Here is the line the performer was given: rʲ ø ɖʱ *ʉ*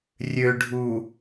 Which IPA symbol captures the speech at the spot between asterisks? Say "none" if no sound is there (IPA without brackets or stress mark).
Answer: u